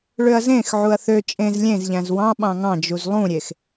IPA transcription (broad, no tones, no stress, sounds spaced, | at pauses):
ɭ ø ɐ̯ z ẽ x ʕ u ɐ̯ θ ø t͡ʃʼ ẽ z lʲ ẽ z ʎ æ̃ z w ɑ̃ ɓ ɑ̃ ŋ ɑ̃ d͡ʒ u z lˠ ũ ɾʲ e x